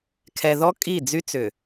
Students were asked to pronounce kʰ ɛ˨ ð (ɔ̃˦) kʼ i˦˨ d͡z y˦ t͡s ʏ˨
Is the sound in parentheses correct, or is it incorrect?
incorrect